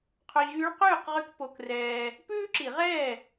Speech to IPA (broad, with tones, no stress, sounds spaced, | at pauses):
qʰ ɵ˧ ʑ yː˧˥ ɭ q yː˥˩ q ʁ y˥ k p o˧ k r ɛː˧ | p ʉː˥ ǁ i˨˩˦ ʁ ɛː˥˩